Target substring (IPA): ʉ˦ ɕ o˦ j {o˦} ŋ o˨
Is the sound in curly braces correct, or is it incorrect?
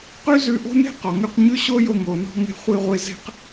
incorrect